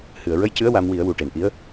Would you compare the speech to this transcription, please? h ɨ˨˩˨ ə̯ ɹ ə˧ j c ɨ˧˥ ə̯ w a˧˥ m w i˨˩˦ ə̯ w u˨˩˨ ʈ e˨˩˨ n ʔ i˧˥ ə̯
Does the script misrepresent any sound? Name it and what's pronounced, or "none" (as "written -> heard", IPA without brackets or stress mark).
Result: none